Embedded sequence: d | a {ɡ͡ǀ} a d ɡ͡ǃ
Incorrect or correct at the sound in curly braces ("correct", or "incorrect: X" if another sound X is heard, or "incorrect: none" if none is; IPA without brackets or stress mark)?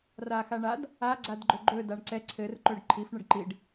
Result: correct